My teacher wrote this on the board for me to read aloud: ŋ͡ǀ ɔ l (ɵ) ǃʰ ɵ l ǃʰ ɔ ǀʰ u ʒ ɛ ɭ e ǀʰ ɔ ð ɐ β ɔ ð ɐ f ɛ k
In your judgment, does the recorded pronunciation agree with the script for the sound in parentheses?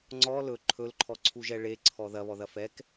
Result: yes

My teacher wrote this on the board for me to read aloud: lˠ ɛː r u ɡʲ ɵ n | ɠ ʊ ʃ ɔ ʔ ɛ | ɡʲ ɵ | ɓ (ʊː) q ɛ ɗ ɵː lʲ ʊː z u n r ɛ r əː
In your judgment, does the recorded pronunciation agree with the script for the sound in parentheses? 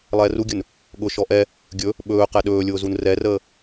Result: no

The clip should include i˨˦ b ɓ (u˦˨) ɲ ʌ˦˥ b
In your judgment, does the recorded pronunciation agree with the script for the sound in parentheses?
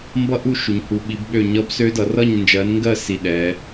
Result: no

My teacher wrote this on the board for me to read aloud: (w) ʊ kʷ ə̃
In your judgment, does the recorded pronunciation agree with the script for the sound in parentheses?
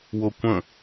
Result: yes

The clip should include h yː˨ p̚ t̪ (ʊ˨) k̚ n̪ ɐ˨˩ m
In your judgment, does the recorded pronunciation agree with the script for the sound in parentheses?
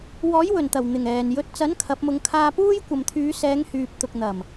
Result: yes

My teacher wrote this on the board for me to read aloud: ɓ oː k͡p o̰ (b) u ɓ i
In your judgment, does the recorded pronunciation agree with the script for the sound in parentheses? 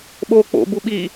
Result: yes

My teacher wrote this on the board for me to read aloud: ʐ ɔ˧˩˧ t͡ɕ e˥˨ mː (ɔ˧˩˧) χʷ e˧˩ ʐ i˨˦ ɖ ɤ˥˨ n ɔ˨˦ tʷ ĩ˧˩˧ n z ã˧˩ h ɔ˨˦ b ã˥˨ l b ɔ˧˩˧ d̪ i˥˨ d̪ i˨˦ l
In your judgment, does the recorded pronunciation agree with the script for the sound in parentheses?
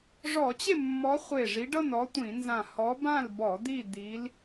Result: no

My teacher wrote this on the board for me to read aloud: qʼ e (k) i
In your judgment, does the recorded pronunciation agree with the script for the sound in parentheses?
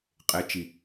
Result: no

